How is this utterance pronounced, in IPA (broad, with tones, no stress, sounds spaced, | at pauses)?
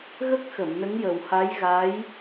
ɣ ə˦˥ k̚ x ə˨˩˨ m n ə˧˥ ŋ j ə˨˩ w h a˧˥ j ɣ a˧˥ j